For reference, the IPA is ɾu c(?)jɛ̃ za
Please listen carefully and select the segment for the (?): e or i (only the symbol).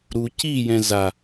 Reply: i